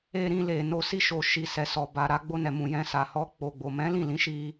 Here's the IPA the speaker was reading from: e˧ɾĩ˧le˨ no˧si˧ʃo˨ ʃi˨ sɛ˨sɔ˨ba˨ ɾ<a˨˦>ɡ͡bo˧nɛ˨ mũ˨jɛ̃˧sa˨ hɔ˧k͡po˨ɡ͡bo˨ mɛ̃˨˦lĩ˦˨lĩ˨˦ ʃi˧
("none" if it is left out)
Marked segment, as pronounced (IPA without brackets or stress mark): a˧